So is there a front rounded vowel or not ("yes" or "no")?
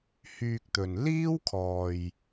yes